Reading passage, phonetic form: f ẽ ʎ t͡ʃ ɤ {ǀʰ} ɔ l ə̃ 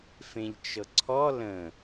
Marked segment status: correct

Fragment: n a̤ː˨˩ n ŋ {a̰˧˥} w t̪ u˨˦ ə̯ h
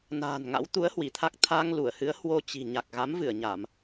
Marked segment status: correct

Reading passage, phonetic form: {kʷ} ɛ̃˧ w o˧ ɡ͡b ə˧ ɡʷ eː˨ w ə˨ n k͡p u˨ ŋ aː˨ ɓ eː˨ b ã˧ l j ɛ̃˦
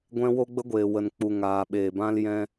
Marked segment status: incorrect: ɡʷ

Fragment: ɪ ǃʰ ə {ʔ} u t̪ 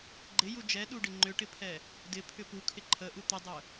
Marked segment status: correct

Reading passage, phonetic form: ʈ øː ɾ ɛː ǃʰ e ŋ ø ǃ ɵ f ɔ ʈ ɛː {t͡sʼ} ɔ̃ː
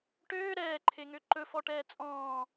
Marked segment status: correct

